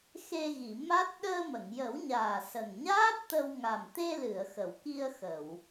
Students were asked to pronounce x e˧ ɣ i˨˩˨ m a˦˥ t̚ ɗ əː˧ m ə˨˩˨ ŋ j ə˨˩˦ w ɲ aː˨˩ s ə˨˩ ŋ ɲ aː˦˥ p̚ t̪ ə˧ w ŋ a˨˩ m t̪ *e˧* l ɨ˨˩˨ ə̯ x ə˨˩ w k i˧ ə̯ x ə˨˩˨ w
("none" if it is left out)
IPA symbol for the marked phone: e˧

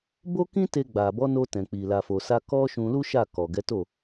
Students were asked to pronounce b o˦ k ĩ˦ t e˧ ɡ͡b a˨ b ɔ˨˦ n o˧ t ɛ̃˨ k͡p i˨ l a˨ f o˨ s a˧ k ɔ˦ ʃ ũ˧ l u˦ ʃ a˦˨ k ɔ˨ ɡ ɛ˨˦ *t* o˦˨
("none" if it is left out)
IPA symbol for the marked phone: t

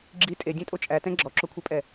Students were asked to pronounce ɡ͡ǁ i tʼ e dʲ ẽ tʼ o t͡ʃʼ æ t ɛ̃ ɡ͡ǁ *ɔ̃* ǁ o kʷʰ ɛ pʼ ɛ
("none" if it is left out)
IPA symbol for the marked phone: ɔ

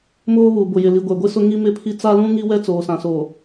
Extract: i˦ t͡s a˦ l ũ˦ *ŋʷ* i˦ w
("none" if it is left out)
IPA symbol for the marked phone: ŋ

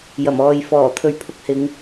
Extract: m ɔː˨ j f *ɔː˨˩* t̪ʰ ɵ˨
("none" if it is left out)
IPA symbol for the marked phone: ɔː˨˩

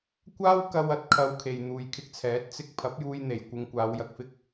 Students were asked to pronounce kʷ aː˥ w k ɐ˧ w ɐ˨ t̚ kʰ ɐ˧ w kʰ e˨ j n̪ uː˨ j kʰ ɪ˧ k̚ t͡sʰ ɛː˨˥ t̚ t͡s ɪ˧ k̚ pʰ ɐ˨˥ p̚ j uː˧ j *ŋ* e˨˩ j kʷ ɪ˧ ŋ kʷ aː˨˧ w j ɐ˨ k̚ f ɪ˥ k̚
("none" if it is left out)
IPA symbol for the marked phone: n̪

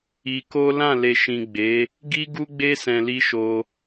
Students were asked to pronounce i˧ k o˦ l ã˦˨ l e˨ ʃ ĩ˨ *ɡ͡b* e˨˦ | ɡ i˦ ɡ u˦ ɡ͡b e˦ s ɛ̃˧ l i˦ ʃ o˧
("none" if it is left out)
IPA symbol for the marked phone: ɡ͡b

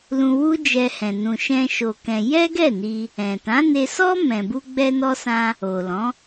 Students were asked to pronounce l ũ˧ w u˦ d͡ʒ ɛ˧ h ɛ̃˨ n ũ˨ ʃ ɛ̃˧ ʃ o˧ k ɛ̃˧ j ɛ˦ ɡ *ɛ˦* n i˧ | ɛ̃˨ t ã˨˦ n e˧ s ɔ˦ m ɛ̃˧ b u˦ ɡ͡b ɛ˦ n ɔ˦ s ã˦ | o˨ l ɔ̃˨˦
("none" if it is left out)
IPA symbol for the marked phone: ɛ˦˨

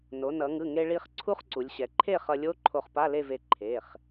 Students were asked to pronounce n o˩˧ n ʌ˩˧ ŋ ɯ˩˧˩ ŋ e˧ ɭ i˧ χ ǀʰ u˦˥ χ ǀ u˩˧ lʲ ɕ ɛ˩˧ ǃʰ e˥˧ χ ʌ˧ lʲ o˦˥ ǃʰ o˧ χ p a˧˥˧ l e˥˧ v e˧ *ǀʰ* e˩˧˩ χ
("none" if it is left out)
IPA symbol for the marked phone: ǃʰ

